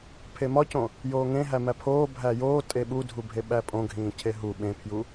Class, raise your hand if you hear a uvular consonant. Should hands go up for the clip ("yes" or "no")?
no